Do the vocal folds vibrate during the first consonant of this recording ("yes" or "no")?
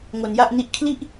yes